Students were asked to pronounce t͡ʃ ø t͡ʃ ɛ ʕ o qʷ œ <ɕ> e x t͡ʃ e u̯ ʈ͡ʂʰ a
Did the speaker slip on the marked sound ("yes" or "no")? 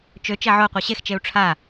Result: no